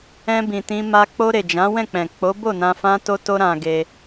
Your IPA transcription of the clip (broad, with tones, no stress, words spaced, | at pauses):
ɛ̃˧bĩ˨tĩ˧ma˧ k͡po˧ɾe˨ d͡ʒã˨˦wɛ̃˦˨k͡pɛ̃˨ k͡po˨˦bo˦˨nã˧ fã˧to˧to˧ ɾã˧ɡe˧